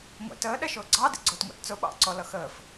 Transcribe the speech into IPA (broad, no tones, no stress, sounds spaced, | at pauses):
ŋʷ ɛ̰ t əː ɗ ɛ ʃ ʊː ɡ͡ǀ ɑ d ḭ ɡ͡ǀ ʊː t ŋʷ ɑ̰ t t͡s ʊ ɓ ɑ̰ ǀ ɔ l ʌ x əː f